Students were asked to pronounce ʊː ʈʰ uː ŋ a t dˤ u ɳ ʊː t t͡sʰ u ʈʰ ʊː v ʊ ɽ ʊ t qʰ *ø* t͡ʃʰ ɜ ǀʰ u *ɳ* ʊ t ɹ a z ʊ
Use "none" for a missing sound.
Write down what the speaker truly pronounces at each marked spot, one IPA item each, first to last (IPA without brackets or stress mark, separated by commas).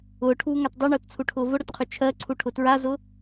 ø, ʈʰ